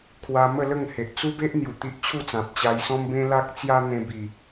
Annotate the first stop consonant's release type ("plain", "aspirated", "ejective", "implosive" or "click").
aspirated